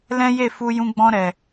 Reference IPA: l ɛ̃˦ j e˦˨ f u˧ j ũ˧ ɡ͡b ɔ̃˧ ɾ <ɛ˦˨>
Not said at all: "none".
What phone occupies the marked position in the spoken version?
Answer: ɛ˨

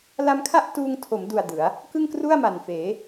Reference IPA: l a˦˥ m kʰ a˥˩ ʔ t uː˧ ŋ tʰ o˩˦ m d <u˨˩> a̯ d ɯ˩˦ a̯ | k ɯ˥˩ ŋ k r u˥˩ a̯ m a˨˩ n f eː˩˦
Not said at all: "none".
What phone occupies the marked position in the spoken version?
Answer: u˨˩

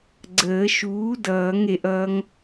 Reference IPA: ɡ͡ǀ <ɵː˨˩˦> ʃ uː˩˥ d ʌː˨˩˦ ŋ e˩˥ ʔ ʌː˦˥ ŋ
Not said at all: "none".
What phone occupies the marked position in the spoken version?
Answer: əː˨˩˦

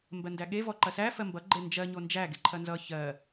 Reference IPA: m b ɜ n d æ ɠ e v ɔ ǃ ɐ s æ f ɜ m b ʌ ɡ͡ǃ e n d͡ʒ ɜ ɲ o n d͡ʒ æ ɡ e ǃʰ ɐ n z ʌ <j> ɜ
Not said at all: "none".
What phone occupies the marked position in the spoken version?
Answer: ç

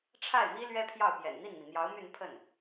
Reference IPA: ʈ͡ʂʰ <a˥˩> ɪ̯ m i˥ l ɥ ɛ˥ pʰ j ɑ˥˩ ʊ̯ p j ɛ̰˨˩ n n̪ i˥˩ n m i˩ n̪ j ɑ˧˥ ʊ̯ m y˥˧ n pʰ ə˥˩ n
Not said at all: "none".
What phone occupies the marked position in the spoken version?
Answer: a˥˩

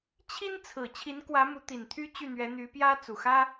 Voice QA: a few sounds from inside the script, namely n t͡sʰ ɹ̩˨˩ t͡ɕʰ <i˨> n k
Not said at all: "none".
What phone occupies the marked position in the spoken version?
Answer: i˧˥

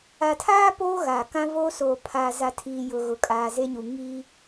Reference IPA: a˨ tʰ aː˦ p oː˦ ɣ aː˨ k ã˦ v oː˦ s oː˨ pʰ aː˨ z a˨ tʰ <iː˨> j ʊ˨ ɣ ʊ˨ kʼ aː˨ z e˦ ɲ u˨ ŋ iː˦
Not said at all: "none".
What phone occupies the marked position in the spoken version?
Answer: iː˨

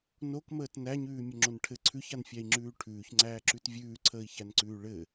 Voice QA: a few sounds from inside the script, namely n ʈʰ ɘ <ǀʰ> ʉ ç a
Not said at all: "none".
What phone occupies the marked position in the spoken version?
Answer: ǀʰ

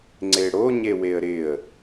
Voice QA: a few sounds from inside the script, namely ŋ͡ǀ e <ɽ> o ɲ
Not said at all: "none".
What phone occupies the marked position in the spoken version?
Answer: ɽ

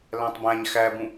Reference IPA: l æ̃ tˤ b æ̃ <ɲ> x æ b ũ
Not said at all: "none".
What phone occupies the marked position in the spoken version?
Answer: ɲ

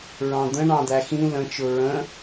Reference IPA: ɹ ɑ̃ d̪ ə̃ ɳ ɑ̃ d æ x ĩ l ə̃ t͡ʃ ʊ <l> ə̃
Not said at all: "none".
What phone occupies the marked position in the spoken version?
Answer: ɹ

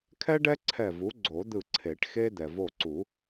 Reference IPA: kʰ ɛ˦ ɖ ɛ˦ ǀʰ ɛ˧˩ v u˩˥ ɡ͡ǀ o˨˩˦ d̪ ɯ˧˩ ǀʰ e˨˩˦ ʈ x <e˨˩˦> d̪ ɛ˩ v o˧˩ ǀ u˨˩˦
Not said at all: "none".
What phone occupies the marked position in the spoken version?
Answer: e˦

